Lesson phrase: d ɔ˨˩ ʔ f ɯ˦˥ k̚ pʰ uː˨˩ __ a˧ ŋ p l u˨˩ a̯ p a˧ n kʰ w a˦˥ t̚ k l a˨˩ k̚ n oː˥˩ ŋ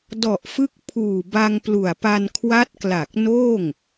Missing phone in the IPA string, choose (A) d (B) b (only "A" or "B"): B